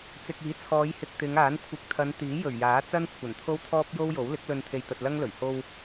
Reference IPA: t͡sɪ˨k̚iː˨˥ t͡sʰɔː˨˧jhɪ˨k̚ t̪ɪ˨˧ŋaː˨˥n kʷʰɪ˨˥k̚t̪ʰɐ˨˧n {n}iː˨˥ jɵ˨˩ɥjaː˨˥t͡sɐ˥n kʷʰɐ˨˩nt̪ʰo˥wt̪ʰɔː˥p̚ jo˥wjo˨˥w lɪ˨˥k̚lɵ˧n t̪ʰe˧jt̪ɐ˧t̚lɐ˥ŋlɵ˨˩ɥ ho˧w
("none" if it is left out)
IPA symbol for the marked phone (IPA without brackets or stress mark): t̪